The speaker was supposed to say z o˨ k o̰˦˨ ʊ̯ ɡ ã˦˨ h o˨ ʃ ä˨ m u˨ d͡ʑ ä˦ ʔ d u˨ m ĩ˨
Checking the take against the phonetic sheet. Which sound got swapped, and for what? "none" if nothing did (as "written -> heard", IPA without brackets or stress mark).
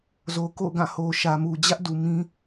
ĩ˨ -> ĩ˦